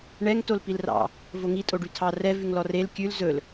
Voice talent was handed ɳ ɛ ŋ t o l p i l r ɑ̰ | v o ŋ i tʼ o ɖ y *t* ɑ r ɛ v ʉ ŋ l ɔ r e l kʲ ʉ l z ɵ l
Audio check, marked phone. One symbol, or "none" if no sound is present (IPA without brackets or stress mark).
tʰ